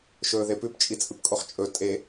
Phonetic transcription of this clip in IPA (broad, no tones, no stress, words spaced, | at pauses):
ʃɵːðepʉp t͡ʃʼit͡sʼɨpkʼoχt͡ʃʼɵ tʼe